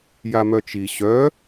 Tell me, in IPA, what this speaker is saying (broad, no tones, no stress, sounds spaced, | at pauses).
j a m œ t͡ʃ i ɕ œ